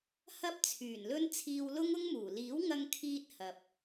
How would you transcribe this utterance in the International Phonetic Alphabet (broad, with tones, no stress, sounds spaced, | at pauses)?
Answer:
h ɐ˥ p̚ t͡sʰ yː˨˩ n l ɵ˥ n t͡sʰ iː˧ w l ʊ˥ ŋ ʊ˥ ŋ m uː˨˩ l iː˨˥ w ŋ ɐ˧ ŋ kʰ iː˧ t̚ h ɐ˨ p̚